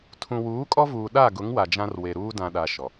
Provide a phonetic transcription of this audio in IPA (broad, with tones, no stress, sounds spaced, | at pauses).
tʰ ũ˨ w uː˨˦ kʼ ɔ˦ v uː˨ ɗ a˦˨ ɡ ʊ˨˦ ŋ w a˨ d͡ʒ ã˦ r w e˨ ɾ uː˦ d ã˨ ɗ a˨ ʃ ɔ˨